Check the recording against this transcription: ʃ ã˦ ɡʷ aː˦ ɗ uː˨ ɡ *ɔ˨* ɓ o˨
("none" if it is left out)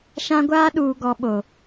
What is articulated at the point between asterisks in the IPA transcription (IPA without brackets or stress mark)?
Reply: ɔ˨